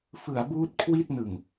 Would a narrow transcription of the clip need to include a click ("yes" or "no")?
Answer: no